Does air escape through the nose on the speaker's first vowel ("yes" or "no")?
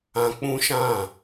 yes